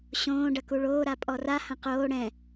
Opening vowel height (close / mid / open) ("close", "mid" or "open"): mid